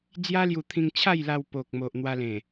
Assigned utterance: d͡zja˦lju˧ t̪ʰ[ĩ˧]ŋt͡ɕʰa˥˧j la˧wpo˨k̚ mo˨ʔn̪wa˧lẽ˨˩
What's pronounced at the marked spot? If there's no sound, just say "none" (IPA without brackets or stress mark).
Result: ĩ˧